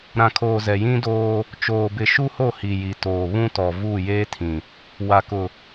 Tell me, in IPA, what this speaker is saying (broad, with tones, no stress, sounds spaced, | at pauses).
ɾ ã˨ kʰ oː˨ z ɛ˨ j ĩ˦ d oː˦ | t͡ʃ oː˨ b ɪ˨ ʃ u˦ h o˦˨ h i˨ j i˨ t oː˨ β ũ˦ t ɔ˨ v uː˦˨ j eː˦ tʰ ĩ˨ | w a˨ k ʊ˨